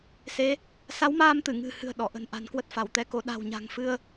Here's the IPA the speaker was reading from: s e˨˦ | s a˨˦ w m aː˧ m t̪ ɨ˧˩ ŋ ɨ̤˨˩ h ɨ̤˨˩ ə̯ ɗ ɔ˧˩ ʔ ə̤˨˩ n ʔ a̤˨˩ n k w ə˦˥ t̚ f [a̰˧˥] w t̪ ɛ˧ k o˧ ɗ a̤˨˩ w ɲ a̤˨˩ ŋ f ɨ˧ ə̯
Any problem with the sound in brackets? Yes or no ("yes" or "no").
yes